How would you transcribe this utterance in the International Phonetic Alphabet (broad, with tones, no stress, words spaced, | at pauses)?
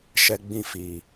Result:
ʃɛ˧ɡ͡bĩ˦˨fiː˨